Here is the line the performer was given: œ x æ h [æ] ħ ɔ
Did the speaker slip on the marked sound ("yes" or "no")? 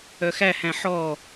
yes